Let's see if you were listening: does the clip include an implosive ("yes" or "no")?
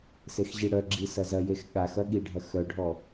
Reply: yes